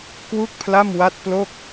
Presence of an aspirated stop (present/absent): present